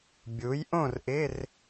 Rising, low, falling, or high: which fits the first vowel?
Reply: rising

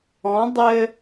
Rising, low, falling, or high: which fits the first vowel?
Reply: rising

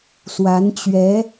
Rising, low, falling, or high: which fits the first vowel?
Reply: rising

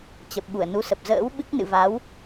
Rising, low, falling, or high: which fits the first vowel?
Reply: low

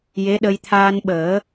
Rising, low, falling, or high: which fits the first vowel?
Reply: rising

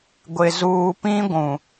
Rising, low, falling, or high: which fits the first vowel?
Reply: low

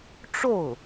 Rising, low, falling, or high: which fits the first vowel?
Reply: falling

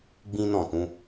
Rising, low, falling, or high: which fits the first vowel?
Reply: high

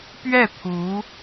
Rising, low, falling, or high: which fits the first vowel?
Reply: falling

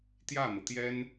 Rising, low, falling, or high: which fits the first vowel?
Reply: falling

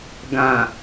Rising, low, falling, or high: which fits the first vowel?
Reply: low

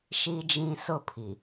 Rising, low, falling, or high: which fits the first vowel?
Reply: high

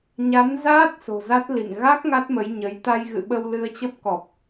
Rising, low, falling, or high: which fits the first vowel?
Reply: rising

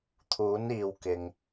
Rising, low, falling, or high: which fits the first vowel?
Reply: rising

